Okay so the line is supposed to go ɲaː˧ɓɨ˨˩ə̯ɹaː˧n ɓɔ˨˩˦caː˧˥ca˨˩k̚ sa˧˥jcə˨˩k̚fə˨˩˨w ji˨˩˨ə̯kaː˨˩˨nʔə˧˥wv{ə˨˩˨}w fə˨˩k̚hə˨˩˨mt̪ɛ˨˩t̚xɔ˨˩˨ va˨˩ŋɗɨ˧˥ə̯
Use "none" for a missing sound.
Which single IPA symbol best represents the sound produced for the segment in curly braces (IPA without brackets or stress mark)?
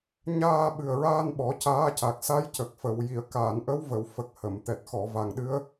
ə˨˩˨